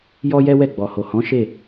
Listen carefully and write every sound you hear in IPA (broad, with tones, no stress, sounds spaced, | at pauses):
j ɔ˦ j ɛ˦ w ɛ˦˨ ɡ͡b ɔ˨ h o˨ h ɔ̃˨˦ ʃ e˦˨